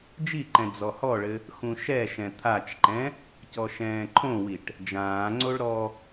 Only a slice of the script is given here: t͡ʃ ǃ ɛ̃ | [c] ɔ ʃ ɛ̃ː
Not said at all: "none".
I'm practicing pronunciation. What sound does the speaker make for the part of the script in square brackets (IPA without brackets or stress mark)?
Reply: c